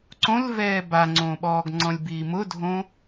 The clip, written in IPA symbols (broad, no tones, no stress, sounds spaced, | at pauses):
ǀ õ l v ɛː b a ŋ͡ǀ õː ɓ ɔː ɡ ŋ͡ǀ ɔ̃ lʲ b iː m ʊ dʱ õ